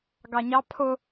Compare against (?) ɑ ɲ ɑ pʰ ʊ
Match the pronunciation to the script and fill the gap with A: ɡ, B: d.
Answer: A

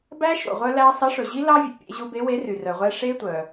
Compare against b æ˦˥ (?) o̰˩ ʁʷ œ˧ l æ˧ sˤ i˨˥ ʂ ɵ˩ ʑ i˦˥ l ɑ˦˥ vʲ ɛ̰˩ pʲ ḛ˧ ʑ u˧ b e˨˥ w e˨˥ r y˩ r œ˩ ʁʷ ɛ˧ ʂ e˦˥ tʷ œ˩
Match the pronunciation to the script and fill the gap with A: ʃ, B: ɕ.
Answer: A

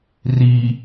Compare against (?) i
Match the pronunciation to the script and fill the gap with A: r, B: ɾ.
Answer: A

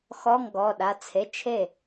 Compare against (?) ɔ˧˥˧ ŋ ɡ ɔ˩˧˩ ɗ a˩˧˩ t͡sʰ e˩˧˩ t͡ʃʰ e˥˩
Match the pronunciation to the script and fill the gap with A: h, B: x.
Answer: B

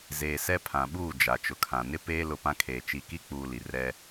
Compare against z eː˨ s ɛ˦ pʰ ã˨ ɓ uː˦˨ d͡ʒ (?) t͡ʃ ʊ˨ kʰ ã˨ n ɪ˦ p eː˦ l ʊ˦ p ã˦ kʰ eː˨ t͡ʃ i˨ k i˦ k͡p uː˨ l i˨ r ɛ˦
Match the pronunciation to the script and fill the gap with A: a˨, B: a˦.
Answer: A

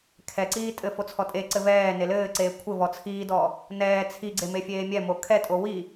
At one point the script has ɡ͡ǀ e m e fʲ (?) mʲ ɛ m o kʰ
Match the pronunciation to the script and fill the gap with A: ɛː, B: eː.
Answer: B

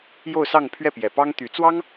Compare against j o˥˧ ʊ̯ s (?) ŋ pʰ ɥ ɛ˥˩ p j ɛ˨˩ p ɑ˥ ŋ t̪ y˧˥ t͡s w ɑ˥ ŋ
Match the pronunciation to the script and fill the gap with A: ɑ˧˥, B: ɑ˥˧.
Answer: B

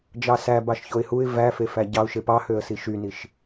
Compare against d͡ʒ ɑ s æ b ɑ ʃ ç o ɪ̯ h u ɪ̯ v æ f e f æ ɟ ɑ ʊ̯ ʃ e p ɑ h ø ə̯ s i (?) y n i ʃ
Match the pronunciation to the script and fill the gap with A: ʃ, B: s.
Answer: A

